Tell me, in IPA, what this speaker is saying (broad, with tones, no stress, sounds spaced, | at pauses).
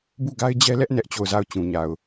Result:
b u˦˨ ɡ a˦ ɪ̯ d͡ʑ ɛ˦ l ɛ˦ ʔ n ɛ˦ ʔ t͡ɕ o˦˨ ʊ̯ z a˦˨ ʊ̯ t͡ɕ ũ˨ ɲ a˨ ʊ̯